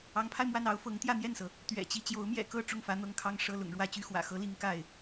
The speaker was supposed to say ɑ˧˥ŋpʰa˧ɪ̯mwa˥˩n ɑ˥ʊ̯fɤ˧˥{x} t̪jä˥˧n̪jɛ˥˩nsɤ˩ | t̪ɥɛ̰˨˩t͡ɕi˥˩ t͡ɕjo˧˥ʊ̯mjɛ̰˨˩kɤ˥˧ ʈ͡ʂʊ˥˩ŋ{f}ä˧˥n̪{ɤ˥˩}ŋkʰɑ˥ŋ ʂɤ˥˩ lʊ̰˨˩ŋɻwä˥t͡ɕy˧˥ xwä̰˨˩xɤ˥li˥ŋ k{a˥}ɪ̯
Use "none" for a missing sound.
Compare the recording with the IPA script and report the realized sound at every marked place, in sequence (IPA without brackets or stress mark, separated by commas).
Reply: ŋ, f, ɤ˥˩, a˥˩